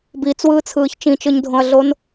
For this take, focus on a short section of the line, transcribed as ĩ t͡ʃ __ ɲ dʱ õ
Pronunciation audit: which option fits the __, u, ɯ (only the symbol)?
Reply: ɯ